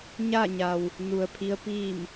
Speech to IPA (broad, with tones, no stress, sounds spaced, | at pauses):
ɲ a˥˨ ɲ a˩ w | n u˩ ə̯ pʰ i˧˥ ə̯ p iː˥˨ m